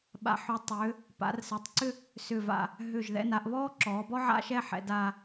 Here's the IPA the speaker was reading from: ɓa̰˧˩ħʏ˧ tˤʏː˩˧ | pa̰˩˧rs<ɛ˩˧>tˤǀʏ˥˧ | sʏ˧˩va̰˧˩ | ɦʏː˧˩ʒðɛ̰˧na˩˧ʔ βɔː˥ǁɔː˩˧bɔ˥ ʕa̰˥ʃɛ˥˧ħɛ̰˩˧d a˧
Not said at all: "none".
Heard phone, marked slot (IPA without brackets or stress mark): ɛ˩˧